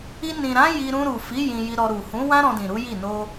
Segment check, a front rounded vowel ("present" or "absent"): absent